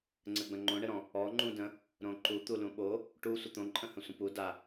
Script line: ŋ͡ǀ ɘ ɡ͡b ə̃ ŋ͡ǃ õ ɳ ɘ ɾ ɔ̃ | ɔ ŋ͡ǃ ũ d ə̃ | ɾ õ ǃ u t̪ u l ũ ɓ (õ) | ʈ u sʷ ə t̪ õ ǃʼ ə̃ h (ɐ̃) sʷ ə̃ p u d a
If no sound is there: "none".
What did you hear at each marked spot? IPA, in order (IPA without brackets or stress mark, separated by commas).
o, ə̃